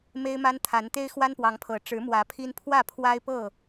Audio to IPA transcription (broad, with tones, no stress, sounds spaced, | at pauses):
m e˦ ɪ̯ m a˦ n t̪ʰ a˨˦ n t̪ e˦ ɪ̯ x w a˦ n p w ɑ˨˦ ŋ pʰ ɤ˨˦ ʈ͡ʂ ɻ̩˨˦ m w ä˨˦ pʰ i˦ n pʰ w ä˥˨ pʰ w a˦ ɪ̯ p ɤ˥˨